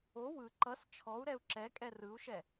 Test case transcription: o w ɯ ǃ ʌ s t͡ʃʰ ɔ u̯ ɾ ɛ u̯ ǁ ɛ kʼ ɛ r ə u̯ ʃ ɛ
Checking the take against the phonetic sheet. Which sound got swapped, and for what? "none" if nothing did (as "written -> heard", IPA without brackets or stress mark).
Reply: ə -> ɯ